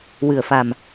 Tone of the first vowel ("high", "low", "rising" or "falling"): low